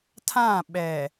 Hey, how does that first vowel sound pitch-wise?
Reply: falling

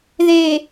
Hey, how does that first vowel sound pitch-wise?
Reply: low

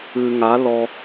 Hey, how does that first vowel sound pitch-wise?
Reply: low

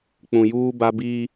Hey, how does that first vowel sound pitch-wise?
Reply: low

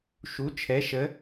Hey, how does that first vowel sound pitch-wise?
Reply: rising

